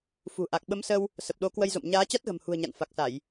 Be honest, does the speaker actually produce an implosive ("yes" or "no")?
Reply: yes